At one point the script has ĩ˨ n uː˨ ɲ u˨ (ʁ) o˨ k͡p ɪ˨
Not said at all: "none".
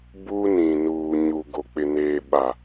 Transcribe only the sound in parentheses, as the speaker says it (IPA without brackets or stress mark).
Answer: ɡ